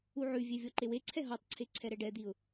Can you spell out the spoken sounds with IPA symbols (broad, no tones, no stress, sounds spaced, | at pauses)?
u ʕ ʉ vʲ e vʲ ɔ ǃ e w e ǀʰ ɛ ɦ ɔ tˤ ǀʰ e ǀʰ ɛ ɾ ɛ ɖ ɛ d̪ i ʊ̯